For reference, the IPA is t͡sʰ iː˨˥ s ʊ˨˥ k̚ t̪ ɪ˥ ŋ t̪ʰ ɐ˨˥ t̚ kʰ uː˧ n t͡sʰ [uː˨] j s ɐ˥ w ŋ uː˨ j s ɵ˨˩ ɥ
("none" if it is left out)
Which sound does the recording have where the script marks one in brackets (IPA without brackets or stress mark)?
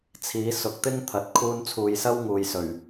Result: uː˨